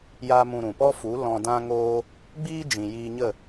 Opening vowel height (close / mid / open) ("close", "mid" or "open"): open